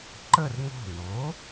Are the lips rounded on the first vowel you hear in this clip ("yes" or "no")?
no